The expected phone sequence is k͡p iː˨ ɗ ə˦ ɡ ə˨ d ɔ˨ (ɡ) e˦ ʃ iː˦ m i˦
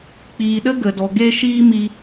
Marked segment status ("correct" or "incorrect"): correct